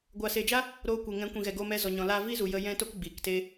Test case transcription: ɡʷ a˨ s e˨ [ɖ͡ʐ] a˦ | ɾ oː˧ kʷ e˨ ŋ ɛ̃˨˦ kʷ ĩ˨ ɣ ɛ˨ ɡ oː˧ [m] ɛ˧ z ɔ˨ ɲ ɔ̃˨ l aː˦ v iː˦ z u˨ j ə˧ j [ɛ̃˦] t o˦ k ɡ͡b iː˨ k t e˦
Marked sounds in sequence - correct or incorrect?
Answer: incorrect, correct, correct

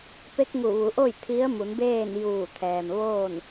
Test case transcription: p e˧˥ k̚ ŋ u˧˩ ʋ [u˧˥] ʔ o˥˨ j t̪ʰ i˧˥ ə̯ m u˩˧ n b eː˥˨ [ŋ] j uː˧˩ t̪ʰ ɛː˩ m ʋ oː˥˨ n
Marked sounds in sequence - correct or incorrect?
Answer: incorrect, incorrect

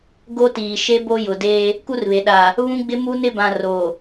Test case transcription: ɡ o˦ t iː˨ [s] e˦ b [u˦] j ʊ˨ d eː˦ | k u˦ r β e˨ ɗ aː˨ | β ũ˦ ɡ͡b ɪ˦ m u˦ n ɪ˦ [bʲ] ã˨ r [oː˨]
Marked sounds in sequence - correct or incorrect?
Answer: incorrect, incorrect, incorrect, correct

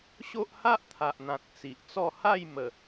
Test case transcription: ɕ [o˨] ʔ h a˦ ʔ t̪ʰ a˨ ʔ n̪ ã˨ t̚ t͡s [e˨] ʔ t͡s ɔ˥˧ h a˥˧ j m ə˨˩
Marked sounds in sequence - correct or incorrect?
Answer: incorrect, incorrect

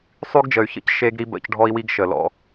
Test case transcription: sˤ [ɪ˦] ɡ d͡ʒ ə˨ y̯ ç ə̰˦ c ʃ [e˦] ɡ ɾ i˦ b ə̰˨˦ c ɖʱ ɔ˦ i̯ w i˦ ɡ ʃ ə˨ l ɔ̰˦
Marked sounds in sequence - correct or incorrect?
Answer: incorrect, correct

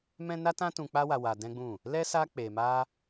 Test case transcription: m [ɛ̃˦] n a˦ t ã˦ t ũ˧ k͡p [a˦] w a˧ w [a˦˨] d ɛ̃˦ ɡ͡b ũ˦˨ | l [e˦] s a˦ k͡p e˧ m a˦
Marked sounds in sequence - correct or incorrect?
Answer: correct, correct, incorrect, incorrect

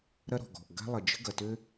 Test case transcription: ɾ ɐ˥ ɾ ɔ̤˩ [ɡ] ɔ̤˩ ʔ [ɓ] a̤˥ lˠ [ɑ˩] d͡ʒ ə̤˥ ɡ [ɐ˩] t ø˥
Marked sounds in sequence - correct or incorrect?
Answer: correct, incorrect, incorrect, correct

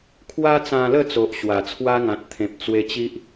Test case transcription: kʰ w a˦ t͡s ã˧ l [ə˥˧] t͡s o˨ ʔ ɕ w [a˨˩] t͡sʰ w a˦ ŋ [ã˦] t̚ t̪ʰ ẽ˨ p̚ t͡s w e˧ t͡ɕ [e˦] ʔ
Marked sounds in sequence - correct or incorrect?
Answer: correct, correct, incorrect, incorrect

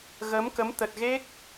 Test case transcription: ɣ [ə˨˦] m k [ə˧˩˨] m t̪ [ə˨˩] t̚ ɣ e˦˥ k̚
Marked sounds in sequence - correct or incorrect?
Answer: correct, incorrect, correct

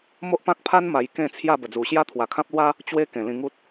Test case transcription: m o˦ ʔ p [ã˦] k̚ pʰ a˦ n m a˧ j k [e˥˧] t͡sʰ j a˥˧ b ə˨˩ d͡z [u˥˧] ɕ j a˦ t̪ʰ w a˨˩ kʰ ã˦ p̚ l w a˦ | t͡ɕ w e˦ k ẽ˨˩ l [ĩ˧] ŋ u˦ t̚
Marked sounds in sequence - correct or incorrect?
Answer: correct, incorrect, incorrect, correct

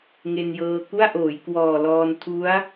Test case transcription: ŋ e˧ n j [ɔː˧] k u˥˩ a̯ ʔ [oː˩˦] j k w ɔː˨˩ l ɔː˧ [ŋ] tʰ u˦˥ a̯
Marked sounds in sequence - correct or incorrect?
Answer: incorrect, correct, incorrect

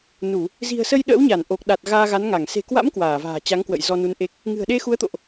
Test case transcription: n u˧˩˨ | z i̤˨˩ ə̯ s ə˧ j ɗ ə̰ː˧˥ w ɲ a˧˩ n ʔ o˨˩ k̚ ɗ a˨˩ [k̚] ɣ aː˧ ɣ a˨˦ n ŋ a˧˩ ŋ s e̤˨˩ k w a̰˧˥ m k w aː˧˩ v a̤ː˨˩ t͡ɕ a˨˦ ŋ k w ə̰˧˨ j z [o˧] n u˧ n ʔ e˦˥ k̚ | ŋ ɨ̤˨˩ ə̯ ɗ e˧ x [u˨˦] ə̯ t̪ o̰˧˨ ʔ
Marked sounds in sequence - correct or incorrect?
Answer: incorrect, incorrect, correct

